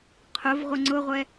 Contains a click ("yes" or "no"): yes